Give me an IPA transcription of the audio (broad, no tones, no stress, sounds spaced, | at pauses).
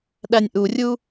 ɗ æ nʲ ʔ u rʲ u